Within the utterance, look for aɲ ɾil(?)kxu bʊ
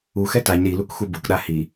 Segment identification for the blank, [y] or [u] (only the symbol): u